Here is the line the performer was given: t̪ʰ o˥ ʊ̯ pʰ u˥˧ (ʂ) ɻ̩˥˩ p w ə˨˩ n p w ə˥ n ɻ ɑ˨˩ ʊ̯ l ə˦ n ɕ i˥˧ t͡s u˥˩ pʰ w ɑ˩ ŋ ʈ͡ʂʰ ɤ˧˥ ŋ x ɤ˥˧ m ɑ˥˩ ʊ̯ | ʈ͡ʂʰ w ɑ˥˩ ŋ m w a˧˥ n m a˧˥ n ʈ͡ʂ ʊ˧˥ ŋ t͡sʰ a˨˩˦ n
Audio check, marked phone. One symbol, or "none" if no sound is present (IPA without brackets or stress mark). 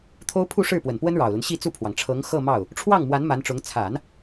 ʂ